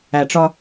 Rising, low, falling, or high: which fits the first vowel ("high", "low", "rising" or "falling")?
low